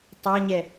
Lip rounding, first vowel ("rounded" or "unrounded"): unrounded